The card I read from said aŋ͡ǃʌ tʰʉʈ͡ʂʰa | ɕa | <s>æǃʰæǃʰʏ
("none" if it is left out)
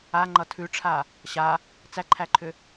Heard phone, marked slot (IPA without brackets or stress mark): t͡s